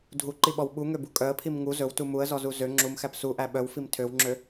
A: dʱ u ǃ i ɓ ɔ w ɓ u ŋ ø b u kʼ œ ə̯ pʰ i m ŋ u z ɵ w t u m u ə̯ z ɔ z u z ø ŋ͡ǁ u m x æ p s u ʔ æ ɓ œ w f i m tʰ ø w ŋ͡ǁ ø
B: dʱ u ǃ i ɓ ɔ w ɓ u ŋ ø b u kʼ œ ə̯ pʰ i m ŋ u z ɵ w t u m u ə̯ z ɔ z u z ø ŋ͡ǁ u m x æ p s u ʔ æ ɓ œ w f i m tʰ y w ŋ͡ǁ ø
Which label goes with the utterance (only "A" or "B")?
A